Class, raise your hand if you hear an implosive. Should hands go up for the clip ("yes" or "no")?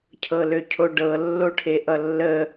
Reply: no